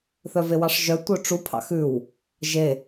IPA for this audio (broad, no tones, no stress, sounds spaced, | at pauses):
θ œ v e w ɑ ʂ ʒ œ tʷ œ ʈ͡ʂ u pʰ ɑ̰ x ʉ w | ʒ e